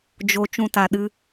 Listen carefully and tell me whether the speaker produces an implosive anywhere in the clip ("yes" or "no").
yes